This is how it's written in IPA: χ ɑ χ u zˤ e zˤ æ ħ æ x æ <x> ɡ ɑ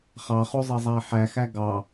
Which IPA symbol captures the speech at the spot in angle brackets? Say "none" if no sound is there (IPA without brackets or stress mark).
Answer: none